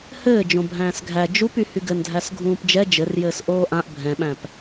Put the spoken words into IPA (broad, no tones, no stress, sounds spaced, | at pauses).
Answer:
h ɘː d͡ʒ õ bʱ æ̃ː s ɡʱ æ d͡ʒ u p y h y ɡ ɘ n dʱ æ s ɡʱ ũː p d͡ʒ ɛ d͡ʒ ɘ r j ɘː s ʔ oː ʔ ã ʔ bʱ ɛ̃ ɓ æ̃ p